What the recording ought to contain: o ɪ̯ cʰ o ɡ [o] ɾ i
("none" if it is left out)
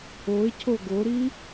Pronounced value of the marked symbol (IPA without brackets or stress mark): o